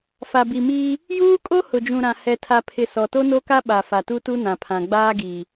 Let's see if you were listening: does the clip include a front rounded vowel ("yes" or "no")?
no